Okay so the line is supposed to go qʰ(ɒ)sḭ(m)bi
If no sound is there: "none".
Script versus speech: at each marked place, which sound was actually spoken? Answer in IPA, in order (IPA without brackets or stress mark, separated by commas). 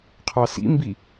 ɑ, m